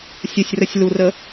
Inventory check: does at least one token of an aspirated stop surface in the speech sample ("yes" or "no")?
no